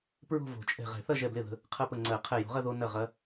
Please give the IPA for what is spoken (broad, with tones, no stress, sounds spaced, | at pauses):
p ɹ o̤˥˧ v o̤˨˩˦ t͡ʃʼ ɛ̤˧˩ ʁ ɛ̤˨˩˦ θ ɐ˥˧ ʒ ɛ˧˩ b l ɪ˥˩ ð ə̤˧ | qʰ ɐ˥˩ p ə˧˩ ŋ͡ǀ ɜ˨˩˦ qʰ ɛ˧˩ j o̤˨˩˦ ʁ ɐ˥˧ ð o˧ n ɐ˥˩ ʁ ɐ˧˥